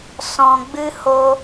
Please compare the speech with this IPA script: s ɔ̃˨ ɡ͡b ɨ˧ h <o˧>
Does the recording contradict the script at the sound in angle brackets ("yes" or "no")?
no